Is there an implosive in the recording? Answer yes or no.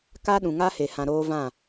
yes